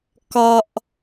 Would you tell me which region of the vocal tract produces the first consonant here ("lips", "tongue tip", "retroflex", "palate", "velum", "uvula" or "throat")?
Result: velum